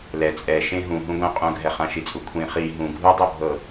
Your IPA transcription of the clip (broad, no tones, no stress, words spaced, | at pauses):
lɛ t͡sʼɛ ʃẽɦũ ɦũɡʷɛ̃qʼũɡʱɛ χãʃit͡sʼukʷʰĩ χi ɦũ ɡʱudˤɤbʱɤ